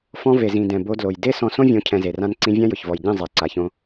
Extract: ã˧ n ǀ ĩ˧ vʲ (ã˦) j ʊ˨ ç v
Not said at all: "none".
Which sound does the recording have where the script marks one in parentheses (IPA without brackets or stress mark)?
ã˦